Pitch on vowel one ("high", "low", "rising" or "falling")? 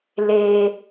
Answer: high